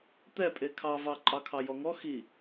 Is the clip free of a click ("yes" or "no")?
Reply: no